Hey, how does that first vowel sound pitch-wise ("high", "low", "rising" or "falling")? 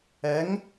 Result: rising